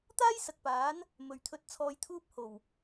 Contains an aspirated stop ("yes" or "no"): yes